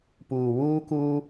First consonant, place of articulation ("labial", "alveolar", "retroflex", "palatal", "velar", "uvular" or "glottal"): labial